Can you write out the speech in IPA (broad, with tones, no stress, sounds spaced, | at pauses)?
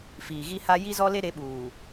f iː˨ ɣ i˦ h a˦ j i˦ z ɔ˦ l e˦ ɾ e˨˦ ɓ uː˨